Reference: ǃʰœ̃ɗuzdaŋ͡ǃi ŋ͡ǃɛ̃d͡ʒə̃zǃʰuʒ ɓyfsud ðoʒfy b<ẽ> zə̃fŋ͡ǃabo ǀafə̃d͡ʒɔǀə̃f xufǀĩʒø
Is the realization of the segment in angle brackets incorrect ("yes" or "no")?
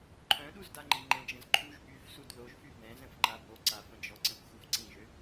yes